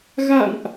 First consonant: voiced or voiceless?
voiced